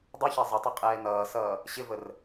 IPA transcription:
dˤuçæ zˤətˤɪ qʼɛːnʌːsʌː | ɕɪvər

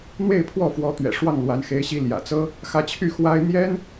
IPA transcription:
n̪we˥˧ɪ̯pʰwɔ˥˩fwɔ˧˥ t̪ɥɛ̰˨˩ʂwɑ˥˩ŋ lwa˧˥n xe˧˥ɪ̯ɕi˧˥ ljä̰˨˩t͡sɤ˥ | xä˧˥t͡ɕʰy˥˩xwa˥ɪ̯ n̪jɛ˥n

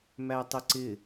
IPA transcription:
mætˤɪǀɪ

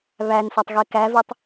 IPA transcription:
βænsɒtˤ ɣekævetˤ

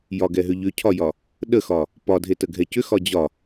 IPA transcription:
jɒɡɛɦʏ ʎʏcʰɒjɒ | ɗəxɒ | pɒdʱetəɡʱɛ cʏxɒ d͡ʑɒ

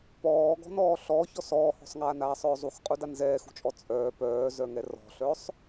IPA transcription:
pɔːɡɔ̤nɔː ɬɔ çɔsɔːhɔ̤sˤŋaːn aːsˤœːzˤuxqʼu danzɛːxṳt͡ʃʼɔ t͡sʼœː pœːzœŋɛ rɔ̤ɬœsˤ

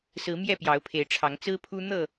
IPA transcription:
sɹ̩˨˦ mjɛ˥˨pjɑ˨˦ʊ̯pʰe˨˦ɪ̯ʈ͡ʂʰɑ˨˦ŋ t͡sɹ̩˦pʰu˦ n̪ɤ˥˨

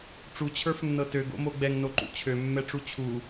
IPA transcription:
ʈ͡ʂut͡ɕʰə˞fnːɤ tøɡo̰mo ɡ͡bɛŋnoǃṵ t͡ɕʰømːɛʈ͡ʂu t͡ɕʰu

